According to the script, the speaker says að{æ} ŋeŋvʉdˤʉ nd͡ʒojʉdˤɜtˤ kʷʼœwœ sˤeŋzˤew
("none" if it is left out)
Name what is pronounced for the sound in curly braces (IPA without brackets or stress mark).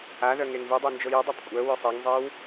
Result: œ